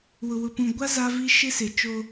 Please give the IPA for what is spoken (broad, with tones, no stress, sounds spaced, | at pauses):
w ʊ˨ w ʊ˨ p ũ˨ ɡʷ a˦ z a˦ v i˦ ʃ ɪ˦ s ɪ˨ t͡ʃ o˦